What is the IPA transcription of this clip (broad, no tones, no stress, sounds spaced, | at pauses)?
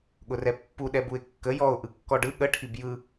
ɠ ʊ r ɛ pː u ɗ ɛ b u ɪ̯ kː ə j ɔ ʊ̯ ʔ ɯ kː ɔ ɖ ɯ ɠ ə ʈʰ i b j ɯ